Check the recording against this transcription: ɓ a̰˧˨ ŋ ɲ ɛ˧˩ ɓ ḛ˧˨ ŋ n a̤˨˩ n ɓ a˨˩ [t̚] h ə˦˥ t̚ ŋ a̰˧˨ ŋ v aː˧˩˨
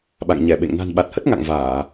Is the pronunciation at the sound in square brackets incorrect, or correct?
correct